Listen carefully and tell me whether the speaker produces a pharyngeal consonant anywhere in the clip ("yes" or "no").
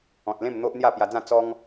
no